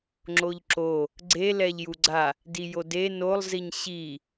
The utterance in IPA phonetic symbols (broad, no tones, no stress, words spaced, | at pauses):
ŋ͡ǁoʎǁo | ɡ͡ǀe lɛʎjuɡ͡ǀa | dijode nolˠziɲ ɕi